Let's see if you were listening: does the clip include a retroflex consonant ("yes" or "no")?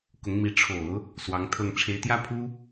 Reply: yes